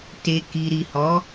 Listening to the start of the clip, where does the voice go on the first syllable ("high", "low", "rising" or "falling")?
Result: low